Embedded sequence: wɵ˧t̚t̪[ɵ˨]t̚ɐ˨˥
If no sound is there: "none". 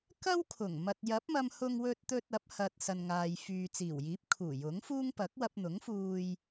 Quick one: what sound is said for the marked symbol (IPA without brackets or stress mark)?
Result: ɵ˧